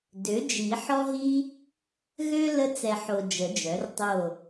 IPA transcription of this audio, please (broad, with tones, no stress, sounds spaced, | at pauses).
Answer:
d ø˩˥ d͡ʒ i˨˩˦ ħ ɔ˦ ɦ i˦ | ɣ ø˦ l ə˦ t͡s ɛ˨ ħ o˨ d͡ʒ ə˨˩˦ d͡ʒ œ˩˥ r tˤ o˦˨